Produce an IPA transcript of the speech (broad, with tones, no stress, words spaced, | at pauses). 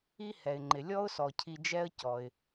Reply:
i˥hɛ˩ɪ̯ŋ͡ǃɪ˩ lʲɔ˥ʊ̯sɔ˩cʰi˨d͡ʒɛ˦ə̯ cɔ˩ɪ̯